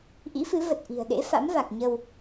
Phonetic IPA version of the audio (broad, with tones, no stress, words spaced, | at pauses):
ʔḭ˧˥fɨ˨˦ və˨˩t̚ ʔi̤˨˩ə̯ɗḛ˧˥fa̰˧˥mva˨˩k̚ ɲə˧w